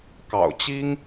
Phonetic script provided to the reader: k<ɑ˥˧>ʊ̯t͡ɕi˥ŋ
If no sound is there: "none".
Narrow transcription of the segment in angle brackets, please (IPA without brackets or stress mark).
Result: ɑ̰˨˩